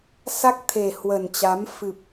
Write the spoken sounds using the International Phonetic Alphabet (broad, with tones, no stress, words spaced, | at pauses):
sa˦˥k̚t̪ʰe˨˩hwə˨˩nt͡ɕa˨˦m fɨ˨˩p̚